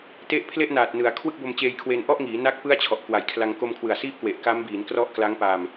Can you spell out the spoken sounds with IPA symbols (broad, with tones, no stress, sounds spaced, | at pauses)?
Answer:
t e˦˥ ʔ pʰ l e˥˩ ʔ n aː˨˩ t̚ n ɯ˩˦ a̯ kʰ w ɯ˥˩ k̚ b o˧ m t͡ɕ eː˧ j kʰ w eː˧ n ʔ ɔ˥˩ ʔ ŋ iː˩˦ n a˦˥ k̚ p ɯ˥˩ a̯ t͡ɕʰ ɔ˨˩ ʔ k w a˨˩ j kʰ l a˧ ŋ k o˧ m kʰ w ɯ˨˩ a̯ s iː˥˩ p̚ k w e˨˩ ʔ k a˦˥ m b iː˩˦ n k r ɔ˦˥ ʔ k l a˦˥ ŋ p a˧ m